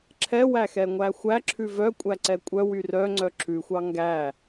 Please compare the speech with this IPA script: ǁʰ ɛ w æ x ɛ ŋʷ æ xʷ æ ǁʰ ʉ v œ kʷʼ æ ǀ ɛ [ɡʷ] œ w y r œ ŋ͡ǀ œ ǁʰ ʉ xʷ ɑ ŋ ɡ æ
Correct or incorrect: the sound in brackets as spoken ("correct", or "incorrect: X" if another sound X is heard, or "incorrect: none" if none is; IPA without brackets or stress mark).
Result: incorrect: kʷʼ